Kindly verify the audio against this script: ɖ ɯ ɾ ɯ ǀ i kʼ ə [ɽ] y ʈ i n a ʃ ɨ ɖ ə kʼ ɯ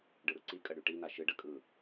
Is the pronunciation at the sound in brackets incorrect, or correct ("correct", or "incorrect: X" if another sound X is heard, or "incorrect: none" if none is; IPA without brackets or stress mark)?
correct